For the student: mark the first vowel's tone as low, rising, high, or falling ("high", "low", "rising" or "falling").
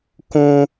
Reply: low